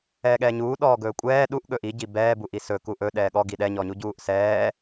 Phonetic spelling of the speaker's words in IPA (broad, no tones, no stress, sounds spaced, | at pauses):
ɛː ɠ ɛː ɲ uː ɗ ɔː ɡ ɵː kʷʼ ɛː ɗ u ʔ ɠ ɵ ʔ i ɟ i b ɛː b u ʔ i s ɵ k u ʔ ɵ ɗ ɛː ɠ ɔ ɡ i ɗ ɛ ɲ ɔ ɲ u ɟ uː ʔ s ɛː